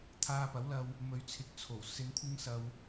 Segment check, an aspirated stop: present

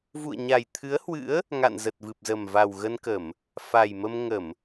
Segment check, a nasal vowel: absent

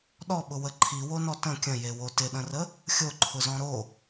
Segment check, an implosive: present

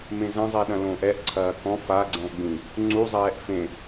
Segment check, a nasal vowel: present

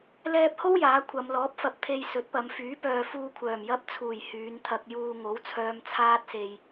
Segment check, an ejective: absent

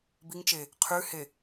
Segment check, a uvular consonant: present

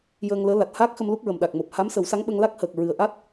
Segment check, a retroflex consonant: absent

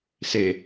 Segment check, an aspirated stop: absent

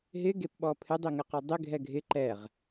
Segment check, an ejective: absent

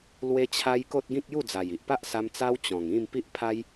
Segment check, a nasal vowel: present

